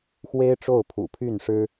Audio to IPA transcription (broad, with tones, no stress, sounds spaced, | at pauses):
x w e˥ ɪ̯ ʈ͡ʂ o˥˩ ʊ̯ pʰ ṵ˨˩ pʰ y˥˩ n ʂ ɻ̩˥